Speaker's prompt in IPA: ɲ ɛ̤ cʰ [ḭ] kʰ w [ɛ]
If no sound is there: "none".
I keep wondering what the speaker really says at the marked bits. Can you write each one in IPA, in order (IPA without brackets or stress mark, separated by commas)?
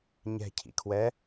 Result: ḭ, ɛ